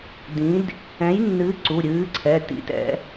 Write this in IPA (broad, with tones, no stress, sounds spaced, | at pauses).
d ĩ˨˥ d | ɛ̃˨˥ j nː ɨ˨˥ ǀ u˩˧˩ ɾʲ ɨː˨˥ ǀʰ ɛ˩˧˩ t ḭ˨˥ t ɛ̰˨˥